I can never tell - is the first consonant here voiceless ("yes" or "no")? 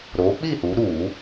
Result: no